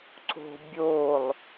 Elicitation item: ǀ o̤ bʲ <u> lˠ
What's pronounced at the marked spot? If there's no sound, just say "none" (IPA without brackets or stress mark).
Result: o